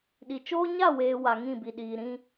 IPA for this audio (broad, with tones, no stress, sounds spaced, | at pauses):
ɗ i˨ t͡ʃ oː˦ ɲ a˦˨ w eː˨ w a˨ ŋ ĩ˦˨ b i˨ ɗ iː˨ ɾ ĩ˦